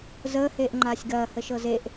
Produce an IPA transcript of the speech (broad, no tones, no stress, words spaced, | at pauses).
zəːheːʔ ŋ͡ǃaːsʲɡɐː həʃɤzeʔ